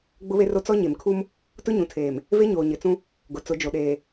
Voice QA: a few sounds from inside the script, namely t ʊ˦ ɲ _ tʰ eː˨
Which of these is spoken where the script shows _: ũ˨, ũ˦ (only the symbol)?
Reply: ũ˨